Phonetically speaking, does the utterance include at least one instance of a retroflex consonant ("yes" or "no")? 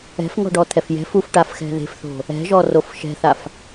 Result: yes